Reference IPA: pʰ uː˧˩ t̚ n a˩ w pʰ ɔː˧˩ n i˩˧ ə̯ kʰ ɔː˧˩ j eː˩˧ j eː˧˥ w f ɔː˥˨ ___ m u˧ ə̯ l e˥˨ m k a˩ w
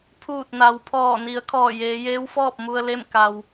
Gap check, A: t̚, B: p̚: B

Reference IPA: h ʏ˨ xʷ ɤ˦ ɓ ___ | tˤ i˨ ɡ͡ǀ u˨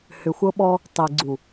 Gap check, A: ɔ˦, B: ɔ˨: A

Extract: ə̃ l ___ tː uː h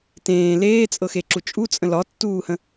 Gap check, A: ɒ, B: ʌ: A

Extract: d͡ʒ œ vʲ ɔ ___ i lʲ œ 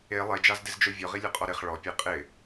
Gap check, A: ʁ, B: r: A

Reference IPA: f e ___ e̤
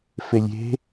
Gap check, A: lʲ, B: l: A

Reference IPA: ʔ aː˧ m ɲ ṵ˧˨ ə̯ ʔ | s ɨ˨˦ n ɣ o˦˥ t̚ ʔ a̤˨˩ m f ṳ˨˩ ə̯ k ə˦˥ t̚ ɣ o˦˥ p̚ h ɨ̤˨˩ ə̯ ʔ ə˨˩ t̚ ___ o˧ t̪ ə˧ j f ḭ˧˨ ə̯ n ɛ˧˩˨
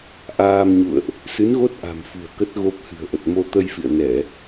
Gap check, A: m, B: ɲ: A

